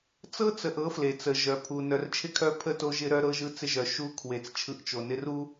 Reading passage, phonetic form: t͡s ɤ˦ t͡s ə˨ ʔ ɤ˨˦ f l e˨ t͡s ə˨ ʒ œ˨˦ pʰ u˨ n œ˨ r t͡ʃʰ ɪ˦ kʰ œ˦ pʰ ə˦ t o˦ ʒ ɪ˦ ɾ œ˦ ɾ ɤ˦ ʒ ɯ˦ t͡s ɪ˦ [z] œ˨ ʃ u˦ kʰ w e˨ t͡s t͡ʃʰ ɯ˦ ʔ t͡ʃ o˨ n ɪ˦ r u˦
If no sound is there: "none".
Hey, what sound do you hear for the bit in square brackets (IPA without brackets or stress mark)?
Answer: ʒ